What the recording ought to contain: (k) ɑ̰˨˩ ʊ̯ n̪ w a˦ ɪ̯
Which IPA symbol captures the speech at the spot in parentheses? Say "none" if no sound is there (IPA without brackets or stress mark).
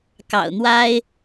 k